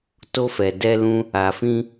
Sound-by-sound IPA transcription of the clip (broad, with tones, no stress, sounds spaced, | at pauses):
t o˧ f ɛ˨ d ɛ˧ l ũ˦ | a˨ f ĩ˧